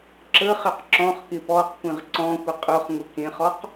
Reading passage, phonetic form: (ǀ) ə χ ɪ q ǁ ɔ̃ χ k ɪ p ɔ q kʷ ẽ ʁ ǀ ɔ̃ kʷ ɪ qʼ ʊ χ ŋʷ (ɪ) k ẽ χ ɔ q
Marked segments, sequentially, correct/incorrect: incorrect: ǁ, incorrect: ə

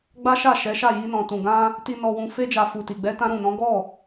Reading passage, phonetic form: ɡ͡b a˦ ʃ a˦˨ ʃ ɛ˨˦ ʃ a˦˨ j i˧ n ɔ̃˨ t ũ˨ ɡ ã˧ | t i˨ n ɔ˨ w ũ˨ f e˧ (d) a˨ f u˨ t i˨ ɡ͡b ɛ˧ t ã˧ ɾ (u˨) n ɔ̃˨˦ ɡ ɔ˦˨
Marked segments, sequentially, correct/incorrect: incorrect: d͡ʒ, incorrect: ũ˨

